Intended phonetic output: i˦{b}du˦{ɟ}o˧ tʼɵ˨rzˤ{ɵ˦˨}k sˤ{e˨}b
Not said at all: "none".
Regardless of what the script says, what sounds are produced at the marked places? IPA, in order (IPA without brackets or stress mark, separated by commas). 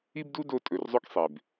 b, d, ɵ˦, e˨